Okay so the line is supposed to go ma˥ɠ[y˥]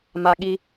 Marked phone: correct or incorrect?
incorrect